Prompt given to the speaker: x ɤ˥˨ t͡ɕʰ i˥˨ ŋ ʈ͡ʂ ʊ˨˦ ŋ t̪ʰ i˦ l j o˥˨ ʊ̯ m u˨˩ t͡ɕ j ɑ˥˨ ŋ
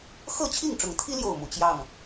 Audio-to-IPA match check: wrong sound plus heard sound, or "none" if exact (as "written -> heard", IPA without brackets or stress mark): none